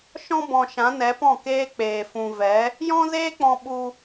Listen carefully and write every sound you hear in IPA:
ʃɔ̃˧bɔ̃˨ ʃã˨˦nɛ˨˦pɔ̃˦˨ keː˧ k͡peː˨ fũ˨vɛ˨˦ | jɔ̃˦zeː˦k͡pɔ̃˧ ɓu˧

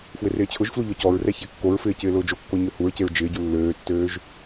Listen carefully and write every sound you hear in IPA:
fwɪrɪːt͡ɕʰʊʒflu ʎɔcɔɹrɛ çɛkːoɹfɪː cɪːlʊːd͡ʒokːo ɲøhuɹceɹ d͡ʒɪːɟu lːøːtːøːʒ

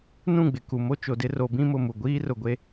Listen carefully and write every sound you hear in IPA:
nũ˦˨ɡ͡bɪ˨ku˨mo˦ t͡ʃo˨dɪ˦ro˨˦ bĩ˦mʊ˦˨mu˨ ɡʷiː˦rʊ˨ɡʷe˦

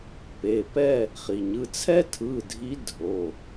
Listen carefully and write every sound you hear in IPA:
pe˩˧˩ pɛ˥˨ | χi˩ɲɯ˩˧˩ t͡sʰɛ˦tʰɯ˩˧˩dʱi˨˦ dʱo˩˧˩

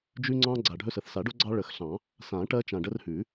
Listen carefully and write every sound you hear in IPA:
d͡ʒʉ˦ŋ͡ǀɑ̃˦ ɡ͡ǀa˨˩ɖʱɵ˦sə˨˩θ sa˨˩˦ɖo˦ ɡ͡ǀɑ˦ɭə˨˩˦xɬɑ̃˨˩˦ | sã˨˩˦ ʈɜ˦t͡ʃã˨˩ɖə˦r hʉ˨˩˦

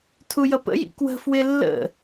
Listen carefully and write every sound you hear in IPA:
tʰujʌpə̰jḭ kwə̤ fwɪlːə̰

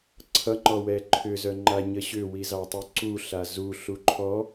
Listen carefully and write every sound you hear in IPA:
ǀʰʌŋ͡ǃɔwɛ ǃʰʏzœŋ͡ǃaɲə ɕʏwizɑtˤu ǀuɬa zuɬu ǃʰɔ

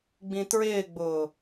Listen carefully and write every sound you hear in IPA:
ɡ͡bĩtɹɪːɡ͡bʊː

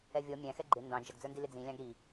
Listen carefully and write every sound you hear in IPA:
ɛvʲɔ mʲæ̃xɛ ɡ͡ǃɪ ndɑ̃ d͡ʒʌɡd͡zə˞ndi lɪd͡zĩ lʲɑ̃ɡɾi

